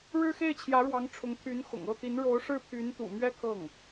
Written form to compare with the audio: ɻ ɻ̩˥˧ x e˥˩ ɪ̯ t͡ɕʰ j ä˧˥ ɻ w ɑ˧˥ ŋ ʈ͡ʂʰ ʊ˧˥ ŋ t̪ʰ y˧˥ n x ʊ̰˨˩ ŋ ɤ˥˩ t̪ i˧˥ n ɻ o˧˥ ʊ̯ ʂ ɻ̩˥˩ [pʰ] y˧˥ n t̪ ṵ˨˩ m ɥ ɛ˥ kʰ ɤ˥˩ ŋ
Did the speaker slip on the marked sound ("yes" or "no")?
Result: no